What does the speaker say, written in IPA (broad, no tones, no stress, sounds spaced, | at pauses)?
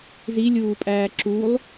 z i lʲ uː pʼ æː ǁ u lˠ